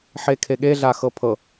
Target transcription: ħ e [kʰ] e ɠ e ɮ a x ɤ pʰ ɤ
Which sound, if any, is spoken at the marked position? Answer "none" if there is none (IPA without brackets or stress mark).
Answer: kʰ